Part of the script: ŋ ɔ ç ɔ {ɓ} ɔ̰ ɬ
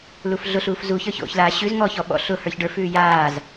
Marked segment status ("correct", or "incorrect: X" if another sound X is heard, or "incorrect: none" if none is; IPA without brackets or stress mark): correct